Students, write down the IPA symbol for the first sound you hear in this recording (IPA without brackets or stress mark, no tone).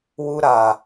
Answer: w